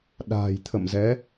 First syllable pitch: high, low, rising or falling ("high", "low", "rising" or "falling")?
low